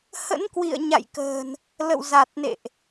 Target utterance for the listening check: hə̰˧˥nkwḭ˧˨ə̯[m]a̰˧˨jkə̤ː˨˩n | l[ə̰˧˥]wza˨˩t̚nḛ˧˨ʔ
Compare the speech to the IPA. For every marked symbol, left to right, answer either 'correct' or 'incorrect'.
incorrect: ɲ, incorrect: ə̰˧˨

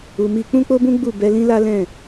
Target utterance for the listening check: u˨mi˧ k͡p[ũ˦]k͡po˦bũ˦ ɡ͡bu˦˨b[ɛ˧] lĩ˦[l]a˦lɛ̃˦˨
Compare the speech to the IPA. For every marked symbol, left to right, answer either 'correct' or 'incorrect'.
correct, correct, correct

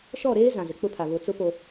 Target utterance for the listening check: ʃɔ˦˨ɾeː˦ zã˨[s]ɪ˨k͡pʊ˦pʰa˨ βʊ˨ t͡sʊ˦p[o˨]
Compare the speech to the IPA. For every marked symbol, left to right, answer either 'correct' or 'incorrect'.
incorrect: z, correct

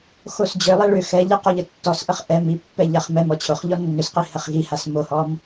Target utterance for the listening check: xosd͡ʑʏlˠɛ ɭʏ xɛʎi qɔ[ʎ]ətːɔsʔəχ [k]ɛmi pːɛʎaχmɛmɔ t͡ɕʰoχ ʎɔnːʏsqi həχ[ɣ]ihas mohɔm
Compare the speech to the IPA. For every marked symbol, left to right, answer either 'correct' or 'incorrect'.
correct, incorrect: ʔ, correct

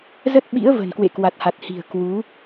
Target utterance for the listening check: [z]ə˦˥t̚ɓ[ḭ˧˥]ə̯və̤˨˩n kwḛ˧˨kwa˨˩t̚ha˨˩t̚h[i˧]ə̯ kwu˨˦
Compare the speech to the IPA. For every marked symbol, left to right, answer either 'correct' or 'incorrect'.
correct, correct, incorrect: i̤˨˩

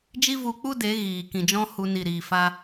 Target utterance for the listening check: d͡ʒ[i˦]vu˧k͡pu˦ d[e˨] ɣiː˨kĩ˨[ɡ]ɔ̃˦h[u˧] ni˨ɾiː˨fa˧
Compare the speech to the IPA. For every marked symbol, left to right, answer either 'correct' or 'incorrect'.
correct, incorrect: e˨˦, incorrect: d͡ʒ, correct

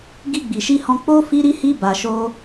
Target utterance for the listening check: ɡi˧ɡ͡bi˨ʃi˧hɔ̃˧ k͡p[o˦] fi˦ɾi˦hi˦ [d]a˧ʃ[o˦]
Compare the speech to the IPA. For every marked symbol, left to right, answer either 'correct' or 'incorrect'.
correct, incorrect: b, correct

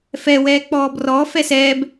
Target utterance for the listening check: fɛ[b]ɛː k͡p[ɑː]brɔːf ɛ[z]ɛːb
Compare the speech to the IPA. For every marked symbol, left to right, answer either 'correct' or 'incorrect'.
incorrect: w, incorrect: ɔː, incorrect: s

